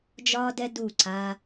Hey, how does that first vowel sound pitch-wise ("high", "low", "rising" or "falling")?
high